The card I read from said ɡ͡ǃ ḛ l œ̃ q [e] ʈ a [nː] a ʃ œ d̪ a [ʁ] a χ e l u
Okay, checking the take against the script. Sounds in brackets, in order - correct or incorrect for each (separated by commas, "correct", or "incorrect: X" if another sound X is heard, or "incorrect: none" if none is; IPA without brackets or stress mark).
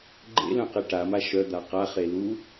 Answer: correct, incorrect: m, incorrect: q